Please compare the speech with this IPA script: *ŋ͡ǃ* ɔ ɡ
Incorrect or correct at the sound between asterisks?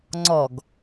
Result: incorrect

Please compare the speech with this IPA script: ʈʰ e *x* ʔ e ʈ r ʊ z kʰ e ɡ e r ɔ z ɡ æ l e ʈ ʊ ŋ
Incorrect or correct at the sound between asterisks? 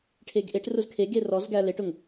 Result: incorrect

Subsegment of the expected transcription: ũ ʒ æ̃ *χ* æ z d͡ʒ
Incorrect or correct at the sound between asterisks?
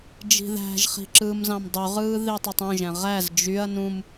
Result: incorrect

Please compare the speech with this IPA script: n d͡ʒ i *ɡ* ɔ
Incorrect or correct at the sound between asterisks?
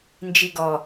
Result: correct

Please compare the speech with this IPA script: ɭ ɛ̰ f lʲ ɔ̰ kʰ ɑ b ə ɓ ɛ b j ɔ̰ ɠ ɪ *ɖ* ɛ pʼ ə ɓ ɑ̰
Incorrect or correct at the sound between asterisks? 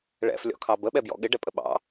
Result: correct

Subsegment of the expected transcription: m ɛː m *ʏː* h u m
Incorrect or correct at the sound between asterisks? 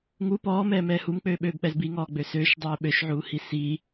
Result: incorrect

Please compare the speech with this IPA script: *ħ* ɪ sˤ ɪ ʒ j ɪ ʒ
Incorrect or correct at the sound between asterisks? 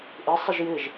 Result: incorrect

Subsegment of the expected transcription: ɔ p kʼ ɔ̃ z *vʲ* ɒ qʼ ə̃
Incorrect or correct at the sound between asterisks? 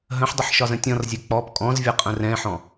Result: correct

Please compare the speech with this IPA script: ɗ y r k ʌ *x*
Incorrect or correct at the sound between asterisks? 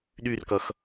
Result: correct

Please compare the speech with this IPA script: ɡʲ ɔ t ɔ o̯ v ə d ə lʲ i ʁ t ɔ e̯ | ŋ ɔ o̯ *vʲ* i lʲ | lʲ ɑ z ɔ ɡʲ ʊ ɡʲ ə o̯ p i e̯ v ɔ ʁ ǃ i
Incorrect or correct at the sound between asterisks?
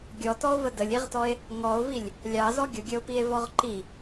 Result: incorrect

